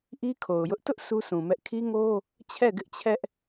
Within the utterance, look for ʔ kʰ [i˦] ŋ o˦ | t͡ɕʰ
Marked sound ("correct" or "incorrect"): correct